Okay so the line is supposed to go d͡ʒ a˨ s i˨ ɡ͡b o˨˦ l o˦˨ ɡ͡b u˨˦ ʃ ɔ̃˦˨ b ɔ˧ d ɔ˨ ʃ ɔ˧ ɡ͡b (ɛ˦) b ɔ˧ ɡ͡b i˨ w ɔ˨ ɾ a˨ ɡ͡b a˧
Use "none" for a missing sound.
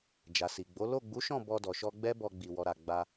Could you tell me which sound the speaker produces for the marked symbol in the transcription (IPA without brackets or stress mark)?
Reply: ɛ˦